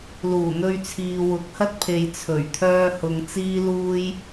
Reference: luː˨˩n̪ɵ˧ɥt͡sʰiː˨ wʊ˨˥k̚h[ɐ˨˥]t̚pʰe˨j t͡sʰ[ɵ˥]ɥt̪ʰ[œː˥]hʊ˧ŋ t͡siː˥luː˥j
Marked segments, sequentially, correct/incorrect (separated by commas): incorrect, incorrect, correct